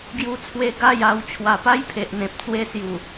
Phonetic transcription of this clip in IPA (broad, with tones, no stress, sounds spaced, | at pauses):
ɡ j u˧ t͡sʰ w e˧ ɡ a˥˧ j a˧ w t͡ɕʰ w a˨˩ p a˦ j pʰ e˨ ʔ n̪ ẽ˨ p̚ t͡s w e˦ s j u˨˩